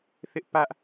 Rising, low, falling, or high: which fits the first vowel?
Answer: high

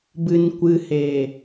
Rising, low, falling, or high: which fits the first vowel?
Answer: low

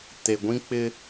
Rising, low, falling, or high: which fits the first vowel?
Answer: low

